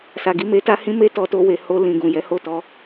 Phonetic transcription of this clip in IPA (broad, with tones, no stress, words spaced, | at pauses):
sa˨ɡi˧me˧ta˦ hĩ˦me˦ tɔ˧to˧we˨ ho˧lĩ˨ ɡũ˨jɛ˨˦ ho˦˨tɔ˧